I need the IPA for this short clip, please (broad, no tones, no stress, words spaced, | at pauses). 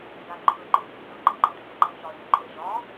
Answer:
ŋɡa ǃʰɵǃei̯ tːɤǃiɡ͡ǃa ɖʱɵɡ͡ǃa t͡ʃɒy̯ɳiǃʼe ʒɒ